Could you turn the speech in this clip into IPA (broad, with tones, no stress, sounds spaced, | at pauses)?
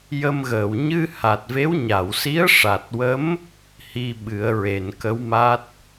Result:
j ə˧ m ɣ əː˨˩˨ w ɲ ɨ˧ h a˨˩ t̚ v e˧˥ w ɲ a˨˩˨ w s i˧˥ ə̯ ʂ a˨˩ t̚ w ə˧˥ m | h i˧ ɓ ɨ˨˩˦ ə̯ ɹ e˨˩˨ n k ə˧˥ w m a˦˥ t̚